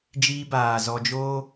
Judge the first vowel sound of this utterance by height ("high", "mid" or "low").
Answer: high